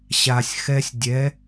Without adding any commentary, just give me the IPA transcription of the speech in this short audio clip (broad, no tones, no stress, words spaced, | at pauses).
ɕasʲ xɛsʲ dʲɛ